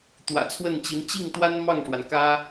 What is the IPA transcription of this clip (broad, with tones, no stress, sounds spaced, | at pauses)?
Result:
t̪ w ä̰˨˩ t͡sʰ w ə˥˩ n t͡ɕ i˧˥ n t͡ɕ i˥˩ ŋ t̪ w a˥ n m ɑ˥˩ ŋ ʂ w a˩ n k ä˥